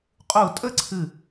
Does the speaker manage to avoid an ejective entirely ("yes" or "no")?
no